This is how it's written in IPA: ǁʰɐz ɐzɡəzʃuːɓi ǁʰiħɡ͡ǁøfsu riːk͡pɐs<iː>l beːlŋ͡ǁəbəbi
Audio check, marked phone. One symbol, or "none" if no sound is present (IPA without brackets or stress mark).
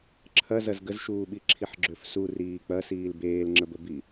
iː